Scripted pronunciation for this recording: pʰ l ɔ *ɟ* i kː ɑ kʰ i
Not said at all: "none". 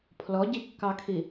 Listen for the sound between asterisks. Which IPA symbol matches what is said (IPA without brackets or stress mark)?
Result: ɟ